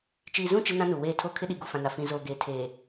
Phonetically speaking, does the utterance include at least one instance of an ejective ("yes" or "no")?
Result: no